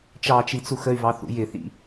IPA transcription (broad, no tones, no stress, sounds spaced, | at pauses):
t͡ʃ ɑ t͡ʃ i t͡s u x ə y̯ v ɑ θ ṵ j ɪ θ ḭ